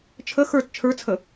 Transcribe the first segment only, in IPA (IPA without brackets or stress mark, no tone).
t͡ʃʰ